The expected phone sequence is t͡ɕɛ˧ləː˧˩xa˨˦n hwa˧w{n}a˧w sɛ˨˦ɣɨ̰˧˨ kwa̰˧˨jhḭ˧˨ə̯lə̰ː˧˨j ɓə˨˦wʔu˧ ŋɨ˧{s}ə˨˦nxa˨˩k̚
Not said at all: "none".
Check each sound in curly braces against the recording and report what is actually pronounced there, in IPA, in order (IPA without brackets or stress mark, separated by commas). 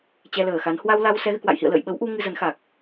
l, z